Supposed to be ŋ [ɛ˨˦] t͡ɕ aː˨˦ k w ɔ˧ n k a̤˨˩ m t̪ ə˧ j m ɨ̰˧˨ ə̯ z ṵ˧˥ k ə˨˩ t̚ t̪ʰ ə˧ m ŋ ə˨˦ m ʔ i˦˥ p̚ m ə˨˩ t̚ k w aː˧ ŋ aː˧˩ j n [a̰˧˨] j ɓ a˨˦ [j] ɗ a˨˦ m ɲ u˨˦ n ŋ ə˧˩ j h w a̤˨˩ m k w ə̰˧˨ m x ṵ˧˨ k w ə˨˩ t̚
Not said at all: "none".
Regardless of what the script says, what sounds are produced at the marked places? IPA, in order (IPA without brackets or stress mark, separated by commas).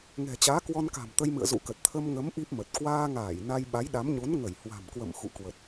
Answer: ɛ̤˨˩, a˧, j